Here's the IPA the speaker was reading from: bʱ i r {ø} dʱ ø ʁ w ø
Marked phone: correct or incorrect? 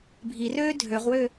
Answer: incorrect